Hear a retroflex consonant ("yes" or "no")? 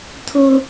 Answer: no